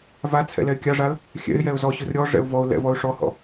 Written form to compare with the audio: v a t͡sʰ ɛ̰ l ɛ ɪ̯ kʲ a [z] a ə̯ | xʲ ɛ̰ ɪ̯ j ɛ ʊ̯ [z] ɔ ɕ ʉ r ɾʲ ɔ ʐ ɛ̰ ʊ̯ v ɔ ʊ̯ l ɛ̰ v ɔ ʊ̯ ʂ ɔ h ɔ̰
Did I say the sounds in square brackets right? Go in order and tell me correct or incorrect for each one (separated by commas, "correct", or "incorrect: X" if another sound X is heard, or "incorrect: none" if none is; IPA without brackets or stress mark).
incorrect: ʐ, correct